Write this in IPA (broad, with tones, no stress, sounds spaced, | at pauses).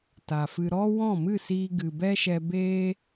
t a˨ f ɨ˧ ɾ ɔ˦ w ɔ̃˦˨ m ɨ˦˨ s iː˧ ɡ ɨ˨ b ɛ˦ ʃ ɛ˧ b eː˦